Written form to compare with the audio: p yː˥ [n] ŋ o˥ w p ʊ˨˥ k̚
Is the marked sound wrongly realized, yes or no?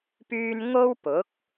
no